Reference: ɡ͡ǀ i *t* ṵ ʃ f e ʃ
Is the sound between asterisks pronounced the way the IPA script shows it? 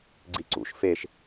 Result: no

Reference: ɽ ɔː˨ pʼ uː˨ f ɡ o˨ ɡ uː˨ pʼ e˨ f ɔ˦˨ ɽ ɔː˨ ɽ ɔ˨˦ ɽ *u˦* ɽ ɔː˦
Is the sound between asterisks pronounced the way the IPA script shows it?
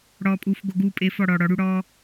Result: yes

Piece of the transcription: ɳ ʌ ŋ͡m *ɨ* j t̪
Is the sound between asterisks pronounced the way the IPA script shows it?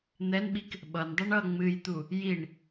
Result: yes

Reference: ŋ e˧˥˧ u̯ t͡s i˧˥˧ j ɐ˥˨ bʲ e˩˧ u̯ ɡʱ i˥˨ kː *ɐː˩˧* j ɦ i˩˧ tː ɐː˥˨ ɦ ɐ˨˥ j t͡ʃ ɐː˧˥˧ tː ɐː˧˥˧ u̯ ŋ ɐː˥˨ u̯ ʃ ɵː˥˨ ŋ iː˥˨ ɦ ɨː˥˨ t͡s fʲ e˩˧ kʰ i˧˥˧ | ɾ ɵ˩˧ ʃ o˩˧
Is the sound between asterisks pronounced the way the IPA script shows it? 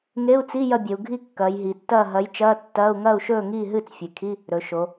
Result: yes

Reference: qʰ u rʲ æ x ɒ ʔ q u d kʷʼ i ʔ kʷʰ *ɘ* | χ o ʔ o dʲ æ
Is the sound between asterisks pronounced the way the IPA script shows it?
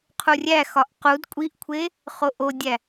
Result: no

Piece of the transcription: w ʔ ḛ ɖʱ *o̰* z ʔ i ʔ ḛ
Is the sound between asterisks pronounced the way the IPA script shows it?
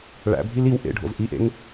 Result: yes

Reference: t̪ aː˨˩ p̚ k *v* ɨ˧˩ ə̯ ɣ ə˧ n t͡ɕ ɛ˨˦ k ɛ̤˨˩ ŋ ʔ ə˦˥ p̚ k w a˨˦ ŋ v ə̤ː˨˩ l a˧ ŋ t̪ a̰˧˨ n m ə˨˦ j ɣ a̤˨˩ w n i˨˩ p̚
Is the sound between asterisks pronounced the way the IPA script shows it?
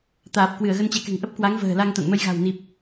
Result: no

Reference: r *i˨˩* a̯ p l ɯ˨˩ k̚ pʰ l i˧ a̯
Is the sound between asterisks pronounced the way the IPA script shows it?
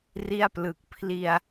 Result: no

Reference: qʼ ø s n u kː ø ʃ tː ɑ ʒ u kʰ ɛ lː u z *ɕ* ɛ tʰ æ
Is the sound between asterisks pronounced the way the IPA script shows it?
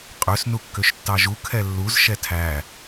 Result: no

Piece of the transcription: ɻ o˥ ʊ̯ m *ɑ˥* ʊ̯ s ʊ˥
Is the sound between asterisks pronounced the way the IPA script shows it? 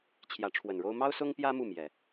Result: yes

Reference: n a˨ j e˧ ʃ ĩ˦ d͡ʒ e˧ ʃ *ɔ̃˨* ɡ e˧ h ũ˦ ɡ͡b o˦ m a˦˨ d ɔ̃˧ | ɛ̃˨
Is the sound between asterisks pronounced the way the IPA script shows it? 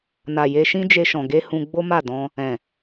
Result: yes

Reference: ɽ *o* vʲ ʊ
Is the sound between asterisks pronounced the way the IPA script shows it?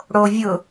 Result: yes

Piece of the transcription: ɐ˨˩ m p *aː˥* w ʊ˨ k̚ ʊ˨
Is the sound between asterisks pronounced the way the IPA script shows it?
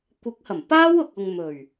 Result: yes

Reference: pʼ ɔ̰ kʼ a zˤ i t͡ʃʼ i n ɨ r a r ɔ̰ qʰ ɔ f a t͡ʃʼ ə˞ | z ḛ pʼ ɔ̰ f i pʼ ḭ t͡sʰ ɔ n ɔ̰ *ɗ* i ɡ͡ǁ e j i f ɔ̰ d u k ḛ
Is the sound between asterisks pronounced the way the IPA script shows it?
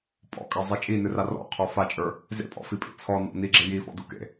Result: no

